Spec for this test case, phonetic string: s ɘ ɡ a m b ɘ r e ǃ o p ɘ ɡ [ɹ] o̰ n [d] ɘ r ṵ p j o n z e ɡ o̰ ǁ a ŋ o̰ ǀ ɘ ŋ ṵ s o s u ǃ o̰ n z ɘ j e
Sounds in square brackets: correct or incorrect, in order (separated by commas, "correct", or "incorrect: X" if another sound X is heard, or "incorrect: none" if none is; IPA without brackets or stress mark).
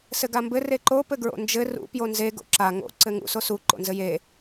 correct, incorrect: d͡ʒ